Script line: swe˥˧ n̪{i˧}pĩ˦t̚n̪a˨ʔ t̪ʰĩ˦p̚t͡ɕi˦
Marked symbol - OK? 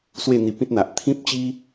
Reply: yes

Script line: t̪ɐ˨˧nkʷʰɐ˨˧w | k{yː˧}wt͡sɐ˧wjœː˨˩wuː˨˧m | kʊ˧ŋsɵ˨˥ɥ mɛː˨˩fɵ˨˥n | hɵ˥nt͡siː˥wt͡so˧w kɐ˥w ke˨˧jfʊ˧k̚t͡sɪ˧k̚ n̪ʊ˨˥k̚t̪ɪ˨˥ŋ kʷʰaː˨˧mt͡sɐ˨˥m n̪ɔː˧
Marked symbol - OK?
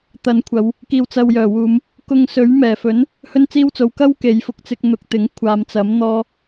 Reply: no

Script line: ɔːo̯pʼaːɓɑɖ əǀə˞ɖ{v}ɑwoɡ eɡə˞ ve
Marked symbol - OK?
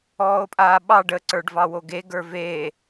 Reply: yes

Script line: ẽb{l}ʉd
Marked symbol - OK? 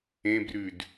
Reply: no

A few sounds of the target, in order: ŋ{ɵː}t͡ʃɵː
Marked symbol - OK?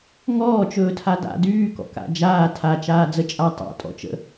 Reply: no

